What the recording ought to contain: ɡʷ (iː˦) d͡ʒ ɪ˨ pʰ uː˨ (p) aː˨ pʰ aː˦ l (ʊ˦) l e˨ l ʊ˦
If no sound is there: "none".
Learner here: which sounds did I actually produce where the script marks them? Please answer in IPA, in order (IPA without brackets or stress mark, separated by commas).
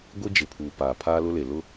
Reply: i˦, p, ʊ˦